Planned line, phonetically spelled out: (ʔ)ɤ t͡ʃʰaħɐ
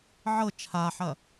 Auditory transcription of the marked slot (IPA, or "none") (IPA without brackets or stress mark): ʕ